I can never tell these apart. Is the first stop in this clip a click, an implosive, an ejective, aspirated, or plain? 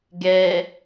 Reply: plain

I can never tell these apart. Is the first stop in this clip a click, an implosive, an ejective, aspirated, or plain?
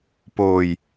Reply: plain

